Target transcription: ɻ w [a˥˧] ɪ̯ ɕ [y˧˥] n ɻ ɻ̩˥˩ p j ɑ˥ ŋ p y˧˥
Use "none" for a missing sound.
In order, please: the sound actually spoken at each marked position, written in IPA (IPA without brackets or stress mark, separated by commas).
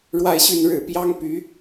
a˥˧, y˥˧